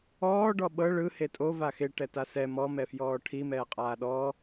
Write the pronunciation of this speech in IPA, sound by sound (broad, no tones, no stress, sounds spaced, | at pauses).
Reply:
ɔː ɖ ɔ ɓ ɤ ɭ ɯ h e tʼ o v a x e ʈ ɛ t a s ɛ m ɔ m ɛ f j ɔː ʈʰ i m ɛː qʼ aː ɗ ɔ